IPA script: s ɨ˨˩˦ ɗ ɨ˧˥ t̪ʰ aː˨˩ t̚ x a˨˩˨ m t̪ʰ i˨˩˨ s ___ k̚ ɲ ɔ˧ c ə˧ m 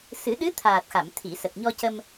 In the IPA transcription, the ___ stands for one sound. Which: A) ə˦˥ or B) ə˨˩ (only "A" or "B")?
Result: B